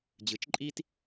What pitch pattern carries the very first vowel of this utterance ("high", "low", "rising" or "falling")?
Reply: rising